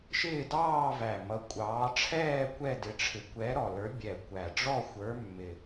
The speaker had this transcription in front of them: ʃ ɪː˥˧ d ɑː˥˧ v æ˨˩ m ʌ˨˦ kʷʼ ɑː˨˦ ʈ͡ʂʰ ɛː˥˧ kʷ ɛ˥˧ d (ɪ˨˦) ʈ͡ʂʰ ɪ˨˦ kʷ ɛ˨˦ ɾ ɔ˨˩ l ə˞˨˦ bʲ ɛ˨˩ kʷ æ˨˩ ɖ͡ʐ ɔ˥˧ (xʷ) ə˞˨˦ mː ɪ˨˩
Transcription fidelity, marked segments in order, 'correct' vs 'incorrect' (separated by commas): correct, correct